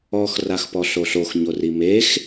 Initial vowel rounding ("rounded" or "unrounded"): rounded